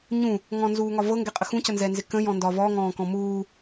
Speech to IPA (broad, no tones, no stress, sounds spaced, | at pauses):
ɲ ũ | ŋ ɔ̃ n z uː ŋ ɒ v ɤ ŋ ɡ ɛ qʼ ə x ũ c ə n z ɛ n z ɪ k ə̃ j ɔ̃ n d ɒ v ɔ ŋ ɔ̃ː k ɔ̃ m uː